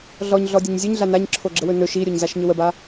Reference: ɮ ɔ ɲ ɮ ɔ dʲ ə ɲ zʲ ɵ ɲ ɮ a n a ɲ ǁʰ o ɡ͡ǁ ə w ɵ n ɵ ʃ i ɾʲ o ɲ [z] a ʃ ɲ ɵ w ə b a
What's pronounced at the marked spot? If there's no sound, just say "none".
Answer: z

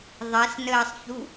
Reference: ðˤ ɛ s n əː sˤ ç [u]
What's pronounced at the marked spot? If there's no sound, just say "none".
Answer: u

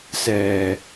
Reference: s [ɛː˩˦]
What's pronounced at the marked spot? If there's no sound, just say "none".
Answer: ɛː˧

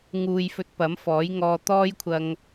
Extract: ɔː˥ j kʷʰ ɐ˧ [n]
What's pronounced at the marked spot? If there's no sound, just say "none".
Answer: ŋ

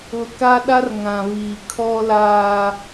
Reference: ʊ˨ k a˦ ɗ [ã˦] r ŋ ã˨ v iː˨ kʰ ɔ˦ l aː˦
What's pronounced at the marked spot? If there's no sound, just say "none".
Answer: a˦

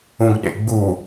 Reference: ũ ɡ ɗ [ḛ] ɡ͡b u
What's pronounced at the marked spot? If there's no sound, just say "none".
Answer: ḛ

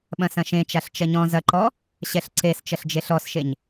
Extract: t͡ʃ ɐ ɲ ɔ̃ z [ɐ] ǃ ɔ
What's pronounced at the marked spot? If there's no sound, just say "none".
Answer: ɐ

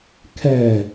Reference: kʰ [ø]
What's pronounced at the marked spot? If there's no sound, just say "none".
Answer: ɛ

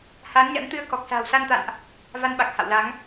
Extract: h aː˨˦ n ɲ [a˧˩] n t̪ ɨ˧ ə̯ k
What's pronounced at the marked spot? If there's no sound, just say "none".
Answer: a̰˧˥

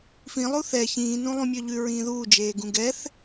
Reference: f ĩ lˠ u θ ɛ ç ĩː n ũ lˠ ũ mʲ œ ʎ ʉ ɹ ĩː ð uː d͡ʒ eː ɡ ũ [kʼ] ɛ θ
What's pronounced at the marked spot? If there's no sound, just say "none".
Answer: ɡ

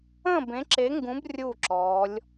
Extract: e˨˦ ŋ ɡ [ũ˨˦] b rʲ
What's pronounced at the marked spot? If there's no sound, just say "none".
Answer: ũ˨˦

